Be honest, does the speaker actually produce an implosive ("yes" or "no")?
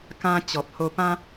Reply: no